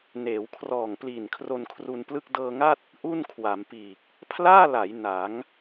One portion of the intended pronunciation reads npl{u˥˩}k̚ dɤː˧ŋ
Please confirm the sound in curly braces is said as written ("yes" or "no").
no